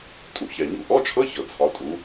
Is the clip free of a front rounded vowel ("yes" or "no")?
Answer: yes